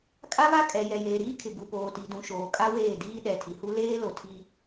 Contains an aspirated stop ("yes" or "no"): yes